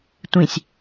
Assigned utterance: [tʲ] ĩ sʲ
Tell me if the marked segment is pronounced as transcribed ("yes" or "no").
no